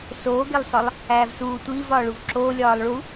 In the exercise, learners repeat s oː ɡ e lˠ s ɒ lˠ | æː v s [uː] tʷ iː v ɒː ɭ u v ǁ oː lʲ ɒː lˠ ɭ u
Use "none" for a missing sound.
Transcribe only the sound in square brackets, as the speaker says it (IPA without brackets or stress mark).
uː